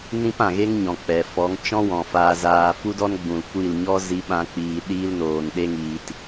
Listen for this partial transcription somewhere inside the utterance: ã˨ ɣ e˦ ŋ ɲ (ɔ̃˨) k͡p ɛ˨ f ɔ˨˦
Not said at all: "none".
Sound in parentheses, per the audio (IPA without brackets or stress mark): ɔ̃˨